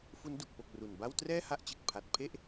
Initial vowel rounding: rounded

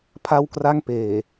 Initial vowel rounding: unrounded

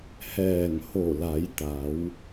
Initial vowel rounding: unrounded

